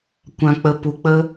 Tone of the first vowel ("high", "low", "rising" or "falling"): low